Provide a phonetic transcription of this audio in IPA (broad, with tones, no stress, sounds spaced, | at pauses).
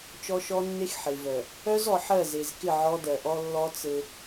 t͡ʃ ɔ˦ ʃ ɔ˦ nː e˦ x ħ e˨ v œ˨ | œ˦ z ɔ˨ ħ ɜ˦˨ z e˨ z k ɪ˦˨ ʕ ɔ˦ d ɜ˨ ʔ ɔ˦ lː ɔ˦ t͡s ɘ˦